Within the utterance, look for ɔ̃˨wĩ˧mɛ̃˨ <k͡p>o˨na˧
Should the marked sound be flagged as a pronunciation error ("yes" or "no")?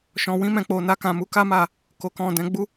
no